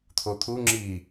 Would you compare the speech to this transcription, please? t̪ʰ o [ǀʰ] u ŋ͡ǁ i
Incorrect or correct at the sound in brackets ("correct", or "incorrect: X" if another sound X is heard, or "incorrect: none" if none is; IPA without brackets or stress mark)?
incorrect: t̪ʰ